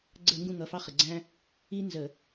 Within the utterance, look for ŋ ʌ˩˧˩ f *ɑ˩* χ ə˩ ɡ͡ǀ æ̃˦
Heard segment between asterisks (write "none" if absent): ɑ˦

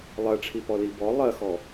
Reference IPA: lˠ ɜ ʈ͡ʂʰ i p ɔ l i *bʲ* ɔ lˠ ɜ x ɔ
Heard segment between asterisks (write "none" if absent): b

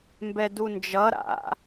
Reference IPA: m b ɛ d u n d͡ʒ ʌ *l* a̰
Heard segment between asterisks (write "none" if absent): ɾ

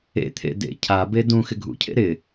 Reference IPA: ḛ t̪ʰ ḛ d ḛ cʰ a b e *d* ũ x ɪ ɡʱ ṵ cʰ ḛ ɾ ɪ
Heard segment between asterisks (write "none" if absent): d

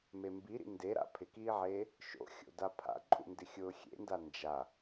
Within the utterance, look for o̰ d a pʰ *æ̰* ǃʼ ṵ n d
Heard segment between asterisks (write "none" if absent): a̰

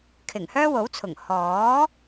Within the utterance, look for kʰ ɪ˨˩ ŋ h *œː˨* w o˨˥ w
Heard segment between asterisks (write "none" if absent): œː˥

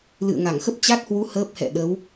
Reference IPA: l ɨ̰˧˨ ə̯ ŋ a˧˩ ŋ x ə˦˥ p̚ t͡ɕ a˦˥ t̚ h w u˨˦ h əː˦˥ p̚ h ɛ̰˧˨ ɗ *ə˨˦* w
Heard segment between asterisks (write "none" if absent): ə˨˦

